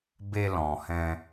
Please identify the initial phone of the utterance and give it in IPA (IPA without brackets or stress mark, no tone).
b